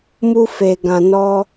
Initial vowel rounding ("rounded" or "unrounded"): rounded